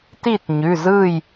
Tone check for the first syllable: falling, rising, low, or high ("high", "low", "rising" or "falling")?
falling